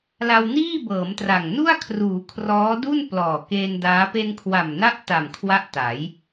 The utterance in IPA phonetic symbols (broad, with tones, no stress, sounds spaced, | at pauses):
l a˧ w n iː˥˩ b ɤː˩˦ m t r a˨˩ ŋ n u˥˩ a̯ kʰ r uː˩˦ kʰ r ɔː˦˥ d u˥˩ n p l ɔː˨˩ k e˧ n d aː˦˥ p e˧ n kʰ w a˨˩ m n a˦˥ ʔ t a˨˩ m kʰ w a˥˩ ʔ t a˩˦ j